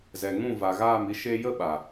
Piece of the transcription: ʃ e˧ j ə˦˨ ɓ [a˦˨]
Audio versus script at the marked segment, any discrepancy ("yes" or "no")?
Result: yes